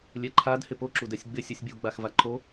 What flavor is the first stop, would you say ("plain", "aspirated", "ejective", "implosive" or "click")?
click